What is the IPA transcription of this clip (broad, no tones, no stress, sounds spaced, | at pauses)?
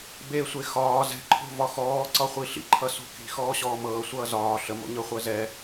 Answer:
b e sʷ e x ɒː z ɛ̤ ǃʰ o̤ v ɒ x ɔː ǀ ɒ χʷ i ɬ ḭ ǃʰ ʌ s o̤ k i̤ x ɔː ɕ ɔː m ɤː sʷ ʌː z ɒː ɬ ə m o̰ ɲ ɤ χʷ ɜ z ɛ